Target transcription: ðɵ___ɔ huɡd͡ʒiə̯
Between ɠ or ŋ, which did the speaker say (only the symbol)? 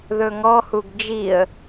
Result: ŋ